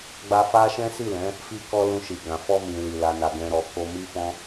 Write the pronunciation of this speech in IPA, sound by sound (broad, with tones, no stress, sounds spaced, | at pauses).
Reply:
ɡ͡b a˧ f a˦ ʃ ɛ̃˦ s i˦˨ l ɛ̃˨˦ | f i˧ k ɔ˧ l ũ˧ ʃ i˨ ɡ ã˨ f ɔ˧ m ĩ˨ l i˨ l a˧ n a˧ ɡ ɛ̃˦ ɾ ɔ˧ k o˧ m i˦ f ɔ̃˦